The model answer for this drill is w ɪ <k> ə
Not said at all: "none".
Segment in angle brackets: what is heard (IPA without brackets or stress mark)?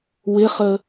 χ